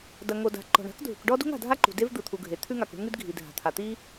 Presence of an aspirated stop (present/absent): present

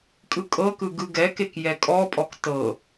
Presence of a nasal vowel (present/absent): absent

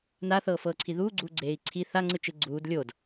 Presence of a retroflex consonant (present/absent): absent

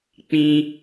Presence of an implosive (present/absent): absent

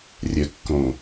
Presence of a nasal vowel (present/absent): present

